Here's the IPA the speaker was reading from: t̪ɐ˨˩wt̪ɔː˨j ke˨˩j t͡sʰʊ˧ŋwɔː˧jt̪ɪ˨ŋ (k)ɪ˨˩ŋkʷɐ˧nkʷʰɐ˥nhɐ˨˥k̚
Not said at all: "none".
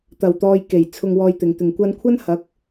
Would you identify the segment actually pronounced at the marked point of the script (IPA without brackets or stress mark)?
t̪